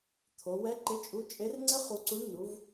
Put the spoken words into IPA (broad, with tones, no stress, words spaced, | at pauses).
t̪ʰo˩˧wɛ˧˥ ǃɪ˧˥t͡ʃʼu˧˥t͡ʃʼe˧˥rŋ͡ǀɪ˥ χu˧ǀu˧˥ɳ nu˧˥v